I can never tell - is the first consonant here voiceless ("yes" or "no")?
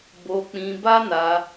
no